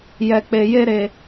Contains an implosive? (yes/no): no